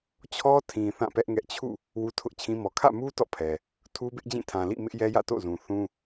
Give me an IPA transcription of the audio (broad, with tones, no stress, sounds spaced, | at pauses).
t͡ɕʰ ɔ˦ tʰ ĩ˨ θ ã˦˨ p ɛ˦ ʔ ŋ ɛ˦ ʔ t͡ɕʰ ṵ˦˨ | w u˦ tʰ ʊ˦ ʔ t͡ɕʰ ĩ˦ m ɔ˨ kʰ ä̰˦˨ m u˦ t ɔ̰˦˨ pʰ ɛ˨ | tʰ u˦ b ɪ˦ ʔ d͡ʑ ĩ˦˨ tʰ ã˨ l ḭ˦˨ m ɪ˦ ʔ j ɛ˦ j ä̰˦˨ t o̰˦˨ z ũ˨ θ ũ˦